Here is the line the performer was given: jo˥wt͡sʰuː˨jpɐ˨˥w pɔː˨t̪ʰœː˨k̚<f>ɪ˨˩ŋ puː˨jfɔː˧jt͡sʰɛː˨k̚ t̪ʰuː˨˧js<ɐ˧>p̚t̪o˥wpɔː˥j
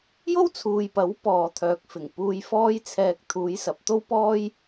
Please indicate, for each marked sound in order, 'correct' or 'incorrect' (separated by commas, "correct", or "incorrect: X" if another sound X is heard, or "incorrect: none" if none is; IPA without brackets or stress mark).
correct, incorrect: ɐ˨